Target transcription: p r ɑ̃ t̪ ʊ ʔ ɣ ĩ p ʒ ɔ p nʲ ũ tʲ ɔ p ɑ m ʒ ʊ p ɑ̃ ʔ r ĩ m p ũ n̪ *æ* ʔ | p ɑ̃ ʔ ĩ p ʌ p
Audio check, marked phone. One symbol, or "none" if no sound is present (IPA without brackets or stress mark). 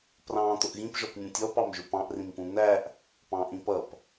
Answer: æ